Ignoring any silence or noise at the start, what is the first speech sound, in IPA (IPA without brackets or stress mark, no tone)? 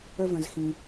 ə